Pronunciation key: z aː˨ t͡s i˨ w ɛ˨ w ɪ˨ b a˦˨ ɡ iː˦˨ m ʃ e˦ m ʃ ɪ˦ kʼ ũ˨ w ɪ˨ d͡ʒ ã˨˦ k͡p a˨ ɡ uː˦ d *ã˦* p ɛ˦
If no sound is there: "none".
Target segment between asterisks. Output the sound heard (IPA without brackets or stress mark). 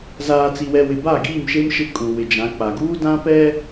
ã˦